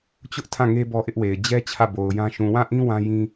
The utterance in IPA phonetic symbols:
t͡ɕ ʊ˦ ʔ tʰ ã˦˨ ŋ e˦ b ɔ˦ ʔ ɪ˦ ʔ w e˨ ɪ̯ d͡ʑ ɛ˦ t͡ɕʰ ä˦˨ b o˨ ʊ̯ j ã˦ ʃ ũ˨ w ã˦˨ ʔ ĩ˦ w ã˦ j ĩ˦

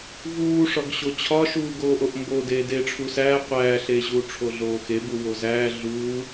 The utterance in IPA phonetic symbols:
v uː ʂ ɒ ɡ ɕ o t͡ɕʰ ɒ ʃ uː ɡ oː ʔ o ʔ m b o d eː d eː ʈ͡ʂʰ u s æː qʷ æː ɬ eː ʑ uː ʈ͡ʂʰ o ɮ oː x e b u w o z æː ɮ uː

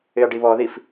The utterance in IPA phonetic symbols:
ɪ ɐ̯ ɖ i β ɔ ð i f

